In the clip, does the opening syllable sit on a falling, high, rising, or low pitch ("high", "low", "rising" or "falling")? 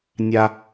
high